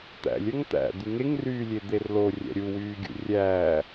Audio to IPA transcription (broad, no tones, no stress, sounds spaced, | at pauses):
t̪ æ̰ lʲ œ ŋ t̪ æ̰ d̪ y ŋ e ŋ r yː lʲ e d̪ e r l o rʲ æ̰ ɾʲ u w yː ɡʲ ṵ rʲ æː